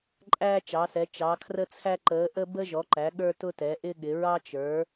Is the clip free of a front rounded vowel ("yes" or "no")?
yes